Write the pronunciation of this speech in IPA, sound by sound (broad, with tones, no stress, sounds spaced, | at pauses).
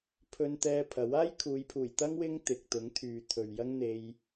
pʰ ɵ˧ n t̪ ɛː˧ pʰ ɐ˨˥ w aː˥ j kʰ uː˨˧ j pʰ uː˨˩ j t̪ ɐ˥ ŋ w ɪ˥ ŋ t̪ ɪ˨ k̚ t̪ ʊ˨˥ ŋ t̪ʰ yː˨ t̪ʰ ɵ˨ ɥ j ɐ˥ ŋ n̪ e˧ j